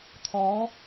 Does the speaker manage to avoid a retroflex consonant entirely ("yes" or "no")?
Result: yes